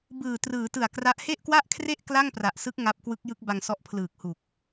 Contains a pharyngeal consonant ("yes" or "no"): no